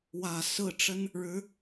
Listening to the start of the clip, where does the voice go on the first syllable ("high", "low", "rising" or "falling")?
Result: low